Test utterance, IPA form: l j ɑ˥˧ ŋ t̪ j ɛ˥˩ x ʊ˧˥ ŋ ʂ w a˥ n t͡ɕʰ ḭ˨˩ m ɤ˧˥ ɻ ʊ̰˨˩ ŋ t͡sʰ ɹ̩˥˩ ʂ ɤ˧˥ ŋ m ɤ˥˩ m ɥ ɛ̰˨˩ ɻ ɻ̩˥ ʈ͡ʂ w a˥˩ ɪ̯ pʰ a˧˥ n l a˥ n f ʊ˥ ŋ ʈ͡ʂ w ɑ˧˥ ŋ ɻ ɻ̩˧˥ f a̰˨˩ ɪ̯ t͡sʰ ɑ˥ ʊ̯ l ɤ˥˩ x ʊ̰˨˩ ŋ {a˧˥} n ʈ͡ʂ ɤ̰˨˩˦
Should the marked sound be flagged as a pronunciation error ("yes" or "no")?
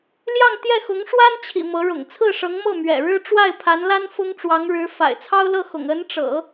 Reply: yes